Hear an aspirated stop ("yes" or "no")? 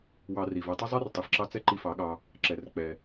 no